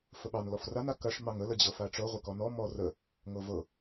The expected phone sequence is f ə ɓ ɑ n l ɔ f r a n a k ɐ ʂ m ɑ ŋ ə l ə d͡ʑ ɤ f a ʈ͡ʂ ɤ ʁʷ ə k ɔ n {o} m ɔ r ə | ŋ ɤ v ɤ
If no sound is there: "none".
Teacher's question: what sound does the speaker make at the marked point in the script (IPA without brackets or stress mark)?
ɔ